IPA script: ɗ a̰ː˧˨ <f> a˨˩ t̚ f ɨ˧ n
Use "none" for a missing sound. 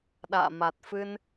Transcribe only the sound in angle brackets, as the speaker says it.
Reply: m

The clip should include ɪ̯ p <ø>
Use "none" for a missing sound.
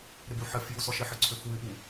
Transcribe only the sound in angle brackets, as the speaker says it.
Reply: u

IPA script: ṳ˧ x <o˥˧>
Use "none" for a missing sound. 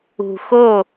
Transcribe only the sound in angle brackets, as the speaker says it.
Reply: o˥˧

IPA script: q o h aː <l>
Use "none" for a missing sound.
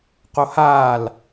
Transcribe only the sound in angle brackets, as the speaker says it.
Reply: l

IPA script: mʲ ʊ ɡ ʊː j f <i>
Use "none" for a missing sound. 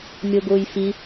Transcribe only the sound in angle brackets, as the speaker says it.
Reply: i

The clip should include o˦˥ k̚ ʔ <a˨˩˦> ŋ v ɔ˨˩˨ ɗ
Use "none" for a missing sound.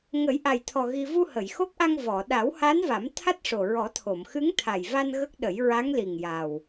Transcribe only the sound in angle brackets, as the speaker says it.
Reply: a˧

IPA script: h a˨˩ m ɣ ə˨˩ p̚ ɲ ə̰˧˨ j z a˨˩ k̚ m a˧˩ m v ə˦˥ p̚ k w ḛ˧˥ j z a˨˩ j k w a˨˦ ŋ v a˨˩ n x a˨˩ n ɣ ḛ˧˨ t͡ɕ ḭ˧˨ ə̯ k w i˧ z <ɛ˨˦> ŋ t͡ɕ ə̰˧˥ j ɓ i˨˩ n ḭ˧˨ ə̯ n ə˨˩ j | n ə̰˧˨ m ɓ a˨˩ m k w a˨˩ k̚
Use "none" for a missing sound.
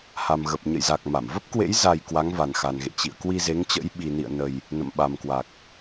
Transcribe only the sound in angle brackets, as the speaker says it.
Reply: e˨˦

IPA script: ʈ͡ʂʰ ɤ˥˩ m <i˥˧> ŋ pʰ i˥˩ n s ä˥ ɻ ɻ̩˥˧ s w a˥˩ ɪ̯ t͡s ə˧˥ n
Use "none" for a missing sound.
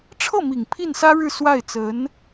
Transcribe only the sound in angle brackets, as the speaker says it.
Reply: i˨˩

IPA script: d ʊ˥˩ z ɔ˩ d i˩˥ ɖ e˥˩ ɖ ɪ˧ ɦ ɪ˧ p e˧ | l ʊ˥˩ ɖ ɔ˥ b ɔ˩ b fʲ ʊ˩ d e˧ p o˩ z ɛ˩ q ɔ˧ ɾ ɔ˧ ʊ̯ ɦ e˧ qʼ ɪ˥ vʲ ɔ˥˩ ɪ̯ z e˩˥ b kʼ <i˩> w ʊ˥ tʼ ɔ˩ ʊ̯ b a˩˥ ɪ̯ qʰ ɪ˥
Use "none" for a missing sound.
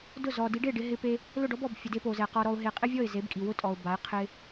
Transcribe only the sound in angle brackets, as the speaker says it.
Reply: i˩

